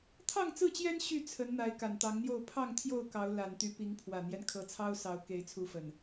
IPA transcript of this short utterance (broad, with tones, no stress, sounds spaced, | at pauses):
t̪ʰ ɑ˥˨ ŋ t͡s ɹ̩˥˨ t͡ɕ j ɛ˦ n ɕ y˥˨ t͡sʰ ə˨˦ n n̪ a˨˦ ɪ̯ k a˨˩ n t̪ ɑ˨˦ ŋ n̪ j o˥˨ ʊ̯ pʰ ɑ˥˨ ŋ t̪ʰ j o˥˨ ʊ̯ k ɑ˨˦ ʊ̯ l a˨˩ n t̪ y˨˦ p i˨˦ ŋ pʰ w ä˨˩ n̪ j ɛ˦ n kʰ ɤ˨˦ t͡sʰ ɑ˦ ʊ̯ s ɑ˨˦ ʊ̯ k e˨˦ ɪ̯ t͡sʰ u˨˦ f ə˨˩ n